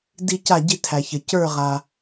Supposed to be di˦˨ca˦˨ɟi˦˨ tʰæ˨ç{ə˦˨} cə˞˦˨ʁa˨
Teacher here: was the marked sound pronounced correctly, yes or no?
no